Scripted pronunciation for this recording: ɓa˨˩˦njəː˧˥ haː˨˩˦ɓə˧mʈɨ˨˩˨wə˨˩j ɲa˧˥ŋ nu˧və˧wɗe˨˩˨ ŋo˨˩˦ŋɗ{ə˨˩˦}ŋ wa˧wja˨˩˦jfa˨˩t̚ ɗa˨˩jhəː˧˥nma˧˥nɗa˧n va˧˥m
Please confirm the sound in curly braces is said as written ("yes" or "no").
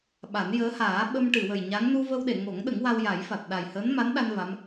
yes